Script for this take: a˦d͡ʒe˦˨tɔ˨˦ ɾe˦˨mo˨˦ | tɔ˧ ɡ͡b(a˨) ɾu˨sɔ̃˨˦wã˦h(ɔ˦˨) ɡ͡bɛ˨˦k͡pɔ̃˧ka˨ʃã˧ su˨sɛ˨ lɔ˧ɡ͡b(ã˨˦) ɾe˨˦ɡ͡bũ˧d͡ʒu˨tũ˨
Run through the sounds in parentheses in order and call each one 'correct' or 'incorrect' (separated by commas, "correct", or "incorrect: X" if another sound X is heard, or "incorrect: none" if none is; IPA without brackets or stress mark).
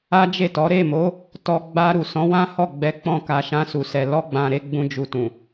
incorrect: a˧, correct, incorrect: ã˨